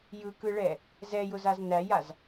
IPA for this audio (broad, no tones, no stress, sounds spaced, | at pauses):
j ɯ k ɯ ɭ ɛ | z ɛ j ʊ z a z n æ j a z